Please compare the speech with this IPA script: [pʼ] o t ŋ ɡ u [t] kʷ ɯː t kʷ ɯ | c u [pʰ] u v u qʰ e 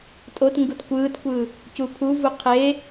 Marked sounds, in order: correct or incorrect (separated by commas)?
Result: incorrect, correct, correct